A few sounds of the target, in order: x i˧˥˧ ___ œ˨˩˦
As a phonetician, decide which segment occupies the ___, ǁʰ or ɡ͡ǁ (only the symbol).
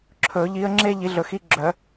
ɡ͡ǁ